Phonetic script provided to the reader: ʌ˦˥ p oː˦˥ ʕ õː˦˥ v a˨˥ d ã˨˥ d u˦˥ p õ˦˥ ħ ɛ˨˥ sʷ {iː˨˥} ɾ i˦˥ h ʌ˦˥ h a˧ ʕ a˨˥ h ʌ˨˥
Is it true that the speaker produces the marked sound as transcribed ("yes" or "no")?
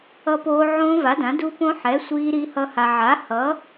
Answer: no